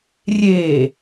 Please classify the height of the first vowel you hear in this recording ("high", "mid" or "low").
mid